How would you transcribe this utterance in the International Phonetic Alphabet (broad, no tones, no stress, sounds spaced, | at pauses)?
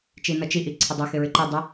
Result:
t͡ʃ i n ʌ t͡ʃ i ʔ i ǀʰ ə dˤ i x ɪ ɹ ɪ ǃ i dˤ ɪ